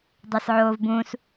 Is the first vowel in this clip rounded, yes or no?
no